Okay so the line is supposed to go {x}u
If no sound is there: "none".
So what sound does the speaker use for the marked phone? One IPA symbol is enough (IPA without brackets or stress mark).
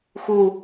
x